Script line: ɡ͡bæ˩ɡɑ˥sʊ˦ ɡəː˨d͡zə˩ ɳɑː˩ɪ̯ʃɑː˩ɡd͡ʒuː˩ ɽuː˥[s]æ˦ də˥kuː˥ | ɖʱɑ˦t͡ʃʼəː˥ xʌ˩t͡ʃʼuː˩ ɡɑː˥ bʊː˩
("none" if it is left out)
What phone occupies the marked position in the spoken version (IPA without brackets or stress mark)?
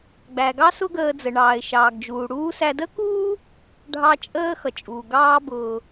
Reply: s